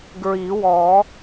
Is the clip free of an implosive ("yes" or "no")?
yes